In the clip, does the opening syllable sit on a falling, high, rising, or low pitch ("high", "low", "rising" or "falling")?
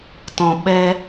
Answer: low